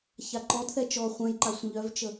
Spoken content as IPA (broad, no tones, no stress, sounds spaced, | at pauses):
ç a ǃ ɔ d θ ɛ t͡ʃ ɔ χʷ ɛ̃ j ǃ a sʷ ə̃ ʎ œ v t͡ʃ ə